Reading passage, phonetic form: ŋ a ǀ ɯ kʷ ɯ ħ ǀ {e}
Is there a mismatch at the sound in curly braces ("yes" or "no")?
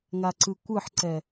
yes